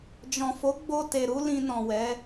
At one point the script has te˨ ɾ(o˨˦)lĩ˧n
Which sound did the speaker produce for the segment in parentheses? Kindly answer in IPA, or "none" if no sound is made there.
u˨˦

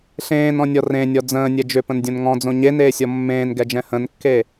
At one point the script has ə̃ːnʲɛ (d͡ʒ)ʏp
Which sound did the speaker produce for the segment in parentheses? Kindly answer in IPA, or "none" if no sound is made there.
d͡ʒ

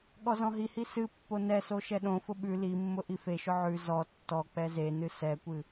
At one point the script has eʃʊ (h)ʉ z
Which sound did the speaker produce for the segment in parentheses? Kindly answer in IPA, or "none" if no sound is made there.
ʕ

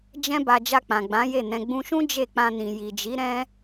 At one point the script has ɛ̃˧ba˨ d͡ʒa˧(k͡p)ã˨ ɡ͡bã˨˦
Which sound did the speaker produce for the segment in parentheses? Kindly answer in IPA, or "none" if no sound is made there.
k͡p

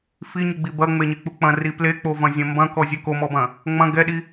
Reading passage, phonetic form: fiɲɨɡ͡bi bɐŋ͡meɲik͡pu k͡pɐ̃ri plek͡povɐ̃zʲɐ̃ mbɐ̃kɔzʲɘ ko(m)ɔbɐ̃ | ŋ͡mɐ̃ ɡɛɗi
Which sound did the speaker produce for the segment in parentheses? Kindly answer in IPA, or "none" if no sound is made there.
m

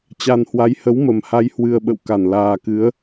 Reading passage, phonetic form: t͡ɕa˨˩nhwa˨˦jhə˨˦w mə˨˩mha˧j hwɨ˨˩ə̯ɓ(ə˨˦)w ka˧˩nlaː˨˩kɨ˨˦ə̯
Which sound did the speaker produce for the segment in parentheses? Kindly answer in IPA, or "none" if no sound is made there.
ə̰˧˨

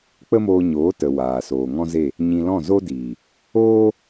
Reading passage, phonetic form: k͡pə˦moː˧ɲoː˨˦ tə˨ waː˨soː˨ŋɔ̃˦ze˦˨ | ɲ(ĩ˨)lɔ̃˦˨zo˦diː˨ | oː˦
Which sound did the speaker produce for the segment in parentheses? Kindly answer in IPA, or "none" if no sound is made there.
ĩ˧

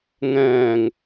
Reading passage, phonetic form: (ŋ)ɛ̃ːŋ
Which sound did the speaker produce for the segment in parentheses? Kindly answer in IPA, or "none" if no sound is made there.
ŋ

